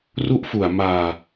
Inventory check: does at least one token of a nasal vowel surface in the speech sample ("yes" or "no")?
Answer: no